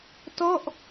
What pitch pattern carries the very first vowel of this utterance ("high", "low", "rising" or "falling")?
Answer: falling